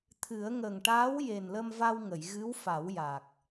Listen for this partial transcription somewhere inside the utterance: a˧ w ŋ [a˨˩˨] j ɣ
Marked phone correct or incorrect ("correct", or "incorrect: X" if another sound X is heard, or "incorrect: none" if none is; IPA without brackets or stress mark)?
incorrect: ə˨˩˨